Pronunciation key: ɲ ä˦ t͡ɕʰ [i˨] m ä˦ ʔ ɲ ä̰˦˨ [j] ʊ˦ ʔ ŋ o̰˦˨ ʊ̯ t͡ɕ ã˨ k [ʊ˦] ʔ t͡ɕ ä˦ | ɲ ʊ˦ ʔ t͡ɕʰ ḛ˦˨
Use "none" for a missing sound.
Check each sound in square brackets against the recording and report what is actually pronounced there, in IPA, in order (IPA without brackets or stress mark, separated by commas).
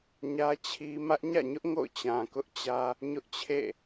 i˦, ɲ, ʊ˦